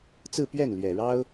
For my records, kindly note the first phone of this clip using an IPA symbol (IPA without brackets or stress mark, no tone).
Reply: t͡s